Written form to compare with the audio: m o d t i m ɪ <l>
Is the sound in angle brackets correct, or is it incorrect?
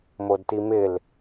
correct